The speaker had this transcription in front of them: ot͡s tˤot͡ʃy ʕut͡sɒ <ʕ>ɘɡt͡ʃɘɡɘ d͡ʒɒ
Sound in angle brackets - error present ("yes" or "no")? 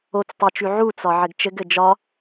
no